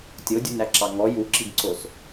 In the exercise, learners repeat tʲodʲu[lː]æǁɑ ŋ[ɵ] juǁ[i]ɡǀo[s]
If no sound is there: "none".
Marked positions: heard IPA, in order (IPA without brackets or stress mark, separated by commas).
n, ɔ, i, s